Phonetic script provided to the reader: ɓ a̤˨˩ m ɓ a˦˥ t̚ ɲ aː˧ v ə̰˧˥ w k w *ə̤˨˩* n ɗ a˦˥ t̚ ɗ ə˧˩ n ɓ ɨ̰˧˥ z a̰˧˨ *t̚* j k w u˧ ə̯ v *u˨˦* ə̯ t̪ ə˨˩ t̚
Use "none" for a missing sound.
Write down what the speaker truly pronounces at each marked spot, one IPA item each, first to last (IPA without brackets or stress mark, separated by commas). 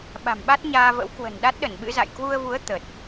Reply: ə̤˨˩, none, u˨˦